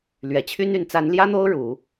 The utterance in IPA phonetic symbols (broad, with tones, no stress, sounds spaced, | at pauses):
l ɥ ɛ˨˩ t͡ɕʰ y˥ n y˧˥ n t͡s a˧˥ n l j ä˥ n̪ o˥ ʊ̯ ɻ u˨˩˦